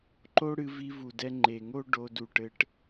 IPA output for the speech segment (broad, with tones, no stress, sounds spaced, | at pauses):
ǃ o˦ ɽ ɨ˧ v i˧ v u˨ d ɛ˧ ŋ͡ǃ e˨ ŋ o˦ ɖ o˧ d u˨ ʈ ɘ˧ ʈ